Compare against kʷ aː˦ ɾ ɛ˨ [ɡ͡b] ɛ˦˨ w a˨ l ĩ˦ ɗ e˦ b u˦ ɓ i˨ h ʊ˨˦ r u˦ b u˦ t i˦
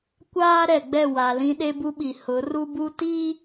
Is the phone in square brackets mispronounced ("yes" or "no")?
no